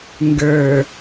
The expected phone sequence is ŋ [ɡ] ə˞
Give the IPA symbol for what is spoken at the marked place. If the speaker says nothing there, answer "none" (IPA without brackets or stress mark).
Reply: ɡ